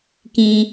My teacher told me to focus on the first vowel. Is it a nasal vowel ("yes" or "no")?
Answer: yes